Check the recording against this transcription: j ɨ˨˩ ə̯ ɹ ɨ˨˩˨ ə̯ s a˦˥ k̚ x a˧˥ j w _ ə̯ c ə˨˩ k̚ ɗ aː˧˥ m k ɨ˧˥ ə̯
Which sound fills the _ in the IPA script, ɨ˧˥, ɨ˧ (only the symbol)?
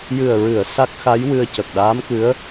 ɨ˧